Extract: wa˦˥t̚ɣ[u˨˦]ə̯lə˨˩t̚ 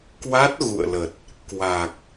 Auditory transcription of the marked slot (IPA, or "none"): ṵ˧˨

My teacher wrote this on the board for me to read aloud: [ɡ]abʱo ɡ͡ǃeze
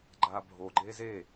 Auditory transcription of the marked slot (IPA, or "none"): ɡ͡ǃ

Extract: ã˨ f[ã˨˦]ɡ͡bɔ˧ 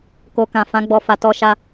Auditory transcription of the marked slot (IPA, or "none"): ã˨˦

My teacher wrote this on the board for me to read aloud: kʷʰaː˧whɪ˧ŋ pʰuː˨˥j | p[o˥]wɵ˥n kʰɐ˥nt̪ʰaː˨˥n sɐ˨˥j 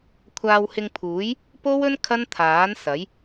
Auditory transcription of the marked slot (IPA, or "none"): o˥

